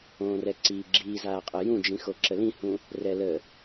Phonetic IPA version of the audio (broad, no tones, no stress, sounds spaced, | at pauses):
õː r ɛ ǀ iː ɡ͡ǁ iː z aː qʼ ə j ũ d͡ʒ ĩ x o ǁ ə l ĩ h ũ | r ɛ l ə